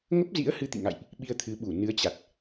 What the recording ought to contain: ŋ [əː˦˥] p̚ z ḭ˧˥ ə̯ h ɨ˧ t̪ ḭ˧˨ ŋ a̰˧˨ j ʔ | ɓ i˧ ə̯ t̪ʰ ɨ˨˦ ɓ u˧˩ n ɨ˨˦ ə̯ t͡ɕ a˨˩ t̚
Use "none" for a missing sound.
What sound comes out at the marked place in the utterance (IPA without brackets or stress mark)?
ə˦˥